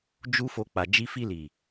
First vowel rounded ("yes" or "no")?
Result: yes